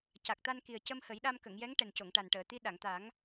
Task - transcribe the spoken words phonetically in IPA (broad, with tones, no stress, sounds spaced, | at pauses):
c a˨˩ k̚ t̪ a˧ n k i˨˩ ə̯ c ə˧ m h ə˨˩˦ j ɗ a˧ m k ə˨˩˨ ŋ j ɛ˧˥ ŋ ʈ ɛ˨˩ n c o˨˩˨ ŋ ʈ a˨˩ n ʈ əː˨˩˨ t̪ i˧˥ ɗ a˨˩˨ ŋ t̪ a˨˩˦ ŋ